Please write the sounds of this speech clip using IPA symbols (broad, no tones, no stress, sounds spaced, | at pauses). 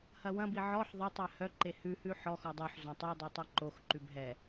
h ɐ w ɐ̃ b i ʕ ɔ ħ ðˤ e tˤ ɛ h œ ǃ e h ʉ h ʉ ħ ɔ x ɔ dˤ o ħ z õ tˤ u dˤ i tˤ ɛ ǃ o x ǃ ʉ b ɦ ɛ